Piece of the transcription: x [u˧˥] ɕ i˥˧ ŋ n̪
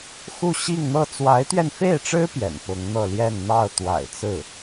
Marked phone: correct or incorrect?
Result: incorrect: u˥˧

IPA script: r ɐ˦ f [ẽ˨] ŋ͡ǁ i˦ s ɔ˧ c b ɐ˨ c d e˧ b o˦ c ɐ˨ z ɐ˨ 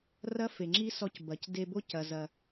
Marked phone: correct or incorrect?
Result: incorrect: e˨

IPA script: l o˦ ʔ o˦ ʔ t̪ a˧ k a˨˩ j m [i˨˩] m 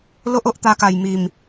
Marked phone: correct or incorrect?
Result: correct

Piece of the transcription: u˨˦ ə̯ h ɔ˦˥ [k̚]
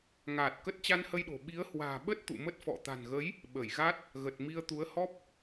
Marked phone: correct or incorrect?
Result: incorrect: p̚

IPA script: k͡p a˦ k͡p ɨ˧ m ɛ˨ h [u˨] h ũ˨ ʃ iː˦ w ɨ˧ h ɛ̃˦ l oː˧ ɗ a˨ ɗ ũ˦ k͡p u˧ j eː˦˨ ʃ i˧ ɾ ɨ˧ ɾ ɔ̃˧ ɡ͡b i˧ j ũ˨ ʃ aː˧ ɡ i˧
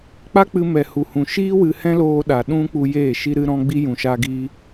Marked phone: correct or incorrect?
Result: correct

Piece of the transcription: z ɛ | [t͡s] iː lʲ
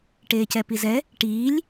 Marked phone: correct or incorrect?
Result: incorrect: ʈ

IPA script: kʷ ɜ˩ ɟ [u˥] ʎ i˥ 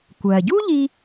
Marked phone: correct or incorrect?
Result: correct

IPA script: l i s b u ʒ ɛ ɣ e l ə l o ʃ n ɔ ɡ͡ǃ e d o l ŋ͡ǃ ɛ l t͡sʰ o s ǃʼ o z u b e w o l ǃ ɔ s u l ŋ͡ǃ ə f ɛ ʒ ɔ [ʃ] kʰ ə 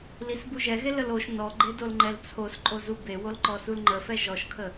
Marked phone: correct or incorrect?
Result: correct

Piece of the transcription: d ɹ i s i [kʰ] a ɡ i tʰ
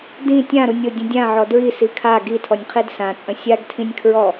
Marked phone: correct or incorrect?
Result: correct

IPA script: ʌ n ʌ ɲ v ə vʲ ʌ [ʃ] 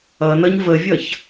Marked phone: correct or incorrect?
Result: incorrect: ç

